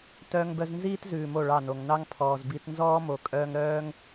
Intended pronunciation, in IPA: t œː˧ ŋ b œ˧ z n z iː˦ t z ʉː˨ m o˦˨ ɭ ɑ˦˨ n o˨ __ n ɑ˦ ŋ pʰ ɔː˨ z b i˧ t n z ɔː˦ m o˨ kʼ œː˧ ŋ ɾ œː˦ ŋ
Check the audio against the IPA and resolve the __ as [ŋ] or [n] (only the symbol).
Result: ŋ